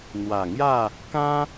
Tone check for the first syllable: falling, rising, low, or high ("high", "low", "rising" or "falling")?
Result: low